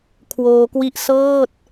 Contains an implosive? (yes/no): no